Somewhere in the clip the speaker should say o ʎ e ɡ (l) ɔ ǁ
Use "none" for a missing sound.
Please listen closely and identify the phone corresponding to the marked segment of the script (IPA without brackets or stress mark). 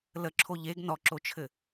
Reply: n